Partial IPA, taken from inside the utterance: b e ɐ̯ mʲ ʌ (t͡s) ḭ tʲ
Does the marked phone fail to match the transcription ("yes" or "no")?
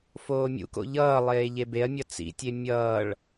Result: no